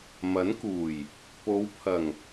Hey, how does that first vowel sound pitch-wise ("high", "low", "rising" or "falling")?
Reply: rising